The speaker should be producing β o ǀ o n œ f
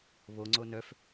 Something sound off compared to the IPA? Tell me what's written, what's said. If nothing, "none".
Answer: ǀ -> ŋ͡ǀ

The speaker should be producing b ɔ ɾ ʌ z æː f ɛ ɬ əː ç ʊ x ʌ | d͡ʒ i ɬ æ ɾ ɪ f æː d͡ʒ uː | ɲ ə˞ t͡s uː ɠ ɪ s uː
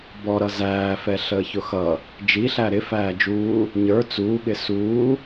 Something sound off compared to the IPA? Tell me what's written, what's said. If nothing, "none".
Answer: none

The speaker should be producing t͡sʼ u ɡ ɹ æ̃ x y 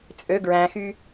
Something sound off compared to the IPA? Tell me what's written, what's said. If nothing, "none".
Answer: u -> ø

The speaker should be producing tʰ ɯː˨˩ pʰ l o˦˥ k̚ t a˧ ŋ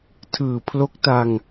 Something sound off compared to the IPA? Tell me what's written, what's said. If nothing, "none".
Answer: none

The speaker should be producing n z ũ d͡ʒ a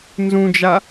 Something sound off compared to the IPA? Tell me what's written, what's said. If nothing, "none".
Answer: none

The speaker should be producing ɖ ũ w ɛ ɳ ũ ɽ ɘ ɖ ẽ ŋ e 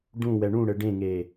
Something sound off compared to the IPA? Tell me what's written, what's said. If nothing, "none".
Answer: none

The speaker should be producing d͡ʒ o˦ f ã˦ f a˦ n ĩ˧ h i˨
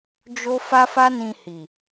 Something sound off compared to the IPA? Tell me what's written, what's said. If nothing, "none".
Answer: ã˦ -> a˦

